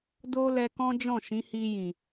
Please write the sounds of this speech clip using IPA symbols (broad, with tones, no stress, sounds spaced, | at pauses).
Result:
d o˦ l ɛ˧ k ɔ̃˦ d͡ʒ ɔ̃˦˨ ʃ ĩ˨˦ h i˧ j ĩ˨